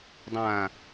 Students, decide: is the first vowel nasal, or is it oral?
nasal